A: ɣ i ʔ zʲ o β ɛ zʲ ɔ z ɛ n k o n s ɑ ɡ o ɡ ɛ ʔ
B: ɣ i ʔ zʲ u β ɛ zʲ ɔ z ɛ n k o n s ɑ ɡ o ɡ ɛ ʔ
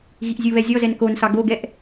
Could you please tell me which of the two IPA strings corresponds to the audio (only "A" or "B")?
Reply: B